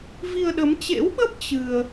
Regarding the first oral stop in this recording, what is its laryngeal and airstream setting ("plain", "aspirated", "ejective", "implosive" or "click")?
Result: implosive